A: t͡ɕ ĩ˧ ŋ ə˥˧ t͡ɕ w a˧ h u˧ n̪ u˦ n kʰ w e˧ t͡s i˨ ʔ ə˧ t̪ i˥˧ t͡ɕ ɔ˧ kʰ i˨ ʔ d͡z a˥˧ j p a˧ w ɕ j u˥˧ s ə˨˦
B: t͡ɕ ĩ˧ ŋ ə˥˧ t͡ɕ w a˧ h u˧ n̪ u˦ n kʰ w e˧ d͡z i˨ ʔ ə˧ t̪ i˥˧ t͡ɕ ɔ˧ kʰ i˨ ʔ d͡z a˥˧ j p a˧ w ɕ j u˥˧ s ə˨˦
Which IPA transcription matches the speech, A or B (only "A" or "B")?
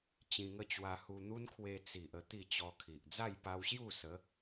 A